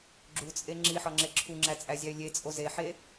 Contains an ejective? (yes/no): yes